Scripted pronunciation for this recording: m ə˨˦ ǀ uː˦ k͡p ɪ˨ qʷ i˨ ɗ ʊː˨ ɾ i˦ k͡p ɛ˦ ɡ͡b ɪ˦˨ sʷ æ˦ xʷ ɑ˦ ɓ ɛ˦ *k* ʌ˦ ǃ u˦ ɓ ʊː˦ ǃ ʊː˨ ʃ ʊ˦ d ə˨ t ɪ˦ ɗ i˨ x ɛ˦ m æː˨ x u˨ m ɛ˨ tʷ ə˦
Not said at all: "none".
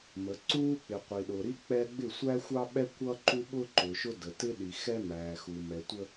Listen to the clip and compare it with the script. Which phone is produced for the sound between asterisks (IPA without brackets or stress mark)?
kʷ